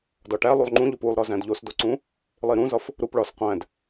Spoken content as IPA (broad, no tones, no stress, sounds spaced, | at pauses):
d ɒ ʈ æ lˠ u lˠ ŋ͡ǃ ũ ʎ o p u lˠ ɾ ɒ z æ̃ d ʎ o s d o ǀ ũ | lˠ i ɾ ũ z ɒ f | ɾ u p ɭ ɒ s qʷ æ̃ d